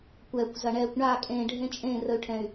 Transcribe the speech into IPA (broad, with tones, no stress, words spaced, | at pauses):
kʷɛː˨kʷzɐ˨ ɳɛː˨kʷ ɳa˦˨ kʼẽː˨ɖʱẽ˦t͡ʃʼẽː˦˨ rə˨y̯ʈʰɛ̃˨y̯